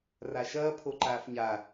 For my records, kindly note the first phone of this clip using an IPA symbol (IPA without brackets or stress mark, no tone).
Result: r